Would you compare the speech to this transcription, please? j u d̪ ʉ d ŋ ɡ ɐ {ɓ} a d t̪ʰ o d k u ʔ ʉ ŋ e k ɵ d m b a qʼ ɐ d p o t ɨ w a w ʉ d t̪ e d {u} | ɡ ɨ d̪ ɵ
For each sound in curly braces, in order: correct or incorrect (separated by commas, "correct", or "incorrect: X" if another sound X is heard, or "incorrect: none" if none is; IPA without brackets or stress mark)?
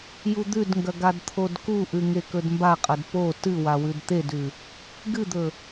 incorrect: ɡ, incorrect: ʉ